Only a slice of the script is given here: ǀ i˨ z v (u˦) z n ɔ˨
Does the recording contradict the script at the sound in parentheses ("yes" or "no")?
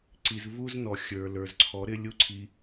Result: no